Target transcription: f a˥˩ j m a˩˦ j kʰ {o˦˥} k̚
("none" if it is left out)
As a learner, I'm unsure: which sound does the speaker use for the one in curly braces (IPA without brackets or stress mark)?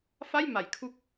u˦˥